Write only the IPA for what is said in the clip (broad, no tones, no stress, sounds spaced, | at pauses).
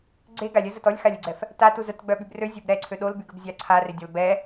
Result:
ɡ͡ǀ e ɡ a lʲ ɛ z ə t ɔ lʲ x a lʲ e ɡ͡ǀ ɛ f | t a t u z ə t ɡ͡b œ ɓ y b r ø zʲ o b ɾ ɛ ǀʰ ø ɗ o l b y ɡ ə b zʲ a ǀʰ a r e dʲ ɔ l b ɛ